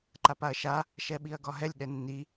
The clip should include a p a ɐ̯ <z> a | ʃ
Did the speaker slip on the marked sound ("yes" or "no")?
yes